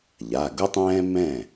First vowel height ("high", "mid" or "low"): low